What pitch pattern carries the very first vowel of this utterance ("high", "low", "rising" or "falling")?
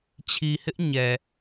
low